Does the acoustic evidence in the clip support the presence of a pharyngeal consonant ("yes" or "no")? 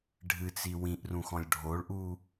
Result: no